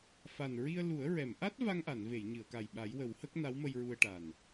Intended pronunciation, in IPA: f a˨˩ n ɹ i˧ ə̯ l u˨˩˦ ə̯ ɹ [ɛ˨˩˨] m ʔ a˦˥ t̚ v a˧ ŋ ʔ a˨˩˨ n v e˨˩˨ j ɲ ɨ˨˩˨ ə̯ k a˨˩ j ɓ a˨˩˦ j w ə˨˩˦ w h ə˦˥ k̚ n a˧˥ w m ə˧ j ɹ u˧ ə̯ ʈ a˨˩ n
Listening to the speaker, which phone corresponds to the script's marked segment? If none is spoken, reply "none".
ɛ˨˩˨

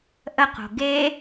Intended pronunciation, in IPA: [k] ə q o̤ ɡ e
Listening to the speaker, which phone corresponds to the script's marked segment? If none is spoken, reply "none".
ʔ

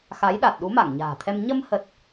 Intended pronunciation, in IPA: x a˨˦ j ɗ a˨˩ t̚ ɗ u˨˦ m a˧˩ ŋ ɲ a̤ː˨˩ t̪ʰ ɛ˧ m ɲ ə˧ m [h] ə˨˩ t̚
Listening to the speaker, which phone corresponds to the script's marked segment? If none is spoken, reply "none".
h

